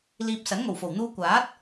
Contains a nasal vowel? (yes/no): no